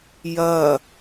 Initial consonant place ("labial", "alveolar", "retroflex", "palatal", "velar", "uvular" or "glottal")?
palatal